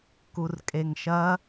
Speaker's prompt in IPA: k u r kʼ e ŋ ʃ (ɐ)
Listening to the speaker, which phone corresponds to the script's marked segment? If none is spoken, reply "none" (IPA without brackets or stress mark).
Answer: ɐ